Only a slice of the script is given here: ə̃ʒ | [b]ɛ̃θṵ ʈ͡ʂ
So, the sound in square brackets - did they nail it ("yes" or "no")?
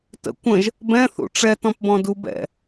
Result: yes